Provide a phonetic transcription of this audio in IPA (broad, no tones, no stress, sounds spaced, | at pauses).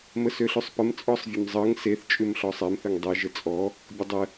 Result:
m ə s ø ɬ ʉ sˤ p ə m t͡sʼ ɔ sˤ vʲ ə m zˤ ɤ ŋ s e θ t͡ʃʼ ʉ m ɬ ɔ sˤ ɛ m θ ə ŋ dˤ e ʒ ə t͡sʼ ɔ | bʲ ə dˤ ə